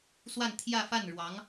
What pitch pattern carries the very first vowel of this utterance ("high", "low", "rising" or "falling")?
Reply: falling